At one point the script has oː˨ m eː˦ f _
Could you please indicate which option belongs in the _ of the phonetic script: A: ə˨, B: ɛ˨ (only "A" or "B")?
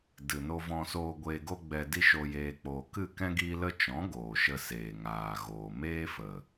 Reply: A